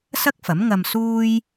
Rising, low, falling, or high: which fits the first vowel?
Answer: high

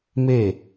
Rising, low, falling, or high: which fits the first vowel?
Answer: falling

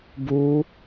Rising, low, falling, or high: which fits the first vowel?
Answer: high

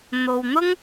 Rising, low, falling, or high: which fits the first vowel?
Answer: low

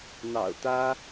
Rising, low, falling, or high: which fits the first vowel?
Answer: low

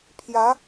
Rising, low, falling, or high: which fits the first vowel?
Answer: rising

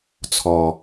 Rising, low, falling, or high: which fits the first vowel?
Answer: low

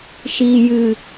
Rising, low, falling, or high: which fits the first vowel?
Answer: low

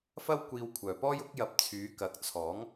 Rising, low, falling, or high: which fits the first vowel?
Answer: high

